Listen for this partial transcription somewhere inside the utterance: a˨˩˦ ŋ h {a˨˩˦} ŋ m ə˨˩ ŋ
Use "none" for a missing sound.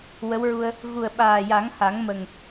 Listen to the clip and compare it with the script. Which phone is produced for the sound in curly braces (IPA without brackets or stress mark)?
a˨˩˦